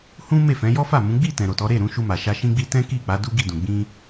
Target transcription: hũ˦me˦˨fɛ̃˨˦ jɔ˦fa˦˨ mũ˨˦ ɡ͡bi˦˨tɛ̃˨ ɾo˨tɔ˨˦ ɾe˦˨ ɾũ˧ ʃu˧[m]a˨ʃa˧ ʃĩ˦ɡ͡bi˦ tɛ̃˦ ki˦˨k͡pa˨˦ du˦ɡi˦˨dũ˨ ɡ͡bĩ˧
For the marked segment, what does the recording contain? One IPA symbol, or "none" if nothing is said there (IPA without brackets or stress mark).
m